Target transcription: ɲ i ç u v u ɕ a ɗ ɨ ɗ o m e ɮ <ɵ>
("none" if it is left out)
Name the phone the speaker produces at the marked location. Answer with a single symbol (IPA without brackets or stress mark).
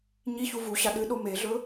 ɵ